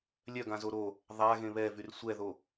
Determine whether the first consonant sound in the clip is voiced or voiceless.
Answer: voiced